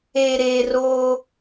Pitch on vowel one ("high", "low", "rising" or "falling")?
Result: low